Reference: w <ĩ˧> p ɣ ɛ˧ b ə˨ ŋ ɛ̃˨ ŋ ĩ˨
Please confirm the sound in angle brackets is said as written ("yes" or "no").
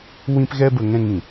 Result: yes